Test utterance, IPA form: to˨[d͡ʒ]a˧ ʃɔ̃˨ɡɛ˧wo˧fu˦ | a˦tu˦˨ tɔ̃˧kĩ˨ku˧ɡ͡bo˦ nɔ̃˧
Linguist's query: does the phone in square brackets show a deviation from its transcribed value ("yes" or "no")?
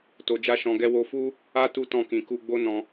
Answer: no